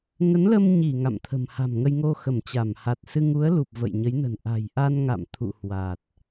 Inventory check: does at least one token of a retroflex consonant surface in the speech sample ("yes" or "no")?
no